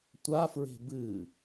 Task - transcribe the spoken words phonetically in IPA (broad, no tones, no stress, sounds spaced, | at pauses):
tʷ a f ɹ e̤ b ɨ